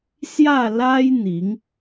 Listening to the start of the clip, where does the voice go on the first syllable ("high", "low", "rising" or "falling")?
falling